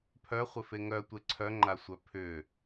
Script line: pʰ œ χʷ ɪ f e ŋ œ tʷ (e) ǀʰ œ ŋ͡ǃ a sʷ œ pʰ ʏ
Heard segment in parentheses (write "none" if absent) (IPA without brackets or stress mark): e